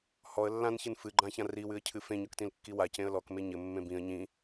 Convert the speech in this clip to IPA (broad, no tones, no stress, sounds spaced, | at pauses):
h ɔ ə̯ lː ã n ç ɨ n f ɨ ɡ͡ǃ ã ç ã r i w ɨ ə̯ cʰ ɨ f ẽ ɲ ɔ k t ĩ l kː i w a c ẽ ə̯ l ɔ k m e ɲ ɘ mː ẽ b ĩ ə̯ ɲ ĩ